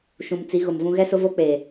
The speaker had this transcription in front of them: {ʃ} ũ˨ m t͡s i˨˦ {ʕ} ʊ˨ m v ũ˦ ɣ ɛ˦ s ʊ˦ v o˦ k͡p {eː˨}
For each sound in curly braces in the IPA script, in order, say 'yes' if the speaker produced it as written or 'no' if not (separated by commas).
yes, no, yes